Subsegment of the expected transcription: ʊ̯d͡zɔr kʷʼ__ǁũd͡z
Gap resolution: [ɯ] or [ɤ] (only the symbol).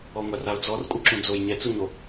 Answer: ɯ